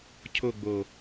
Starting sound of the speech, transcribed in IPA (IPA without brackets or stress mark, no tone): cʰ